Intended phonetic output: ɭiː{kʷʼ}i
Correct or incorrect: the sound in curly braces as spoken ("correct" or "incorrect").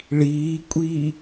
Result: correct